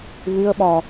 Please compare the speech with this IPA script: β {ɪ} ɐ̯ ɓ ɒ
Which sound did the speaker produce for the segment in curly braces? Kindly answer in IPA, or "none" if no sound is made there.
ɪ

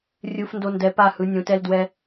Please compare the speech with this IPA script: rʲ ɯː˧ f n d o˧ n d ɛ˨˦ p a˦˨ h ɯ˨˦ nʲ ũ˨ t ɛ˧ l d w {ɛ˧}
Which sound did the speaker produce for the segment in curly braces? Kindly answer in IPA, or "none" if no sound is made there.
ɛ˧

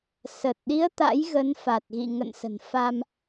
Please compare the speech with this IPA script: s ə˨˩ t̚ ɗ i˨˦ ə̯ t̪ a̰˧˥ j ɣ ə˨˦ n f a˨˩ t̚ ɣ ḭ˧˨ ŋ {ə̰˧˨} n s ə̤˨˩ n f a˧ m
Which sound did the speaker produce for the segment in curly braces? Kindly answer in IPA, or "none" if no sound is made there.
ə̰˧˨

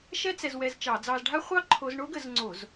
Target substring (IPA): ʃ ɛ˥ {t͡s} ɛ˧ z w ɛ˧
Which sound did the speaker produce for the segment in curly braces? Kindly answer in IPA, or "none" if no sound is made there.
t͡s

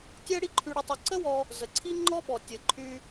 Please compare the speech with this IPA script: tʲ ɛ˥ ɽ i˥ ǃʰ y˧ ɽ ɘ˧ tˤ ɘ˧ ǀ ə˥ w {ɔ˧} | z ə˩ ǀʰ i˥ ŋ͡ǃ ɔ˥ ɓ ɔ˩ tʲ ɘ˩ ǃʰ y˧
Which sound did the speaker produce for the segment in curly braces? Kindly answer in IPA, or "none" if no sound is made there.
ɔ˧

